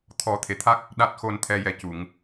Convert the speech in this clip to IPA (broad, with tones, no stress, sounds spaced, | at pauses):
t̪ʰ ɔ˨˩˦ t̪ʰ e˨˩ t̪ʰ a˦˥ k̚ | ɗ a˦˥ t̚ x o˧ n t̪ʰ ɛ˧ j ɛ˧ c u˨˩˨ ŋ